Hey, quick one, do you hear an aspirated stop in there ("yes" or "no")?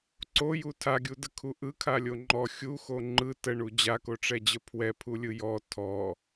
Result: yes